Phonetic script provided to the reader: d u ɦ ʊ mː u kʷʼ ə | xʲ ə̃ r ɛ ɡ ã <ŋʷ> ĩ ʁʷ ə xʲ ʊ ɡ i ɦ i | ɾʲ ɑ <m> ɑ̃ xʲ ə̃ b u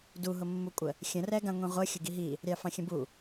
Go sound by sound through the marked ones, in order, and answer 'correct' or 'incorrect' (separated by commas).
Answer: correct, incorrect